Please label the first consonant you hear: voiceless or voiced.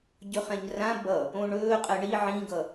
voiced